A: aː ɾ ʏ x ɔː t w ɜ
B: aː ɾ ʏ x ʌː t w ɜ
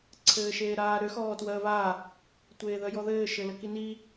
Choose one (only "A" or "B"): A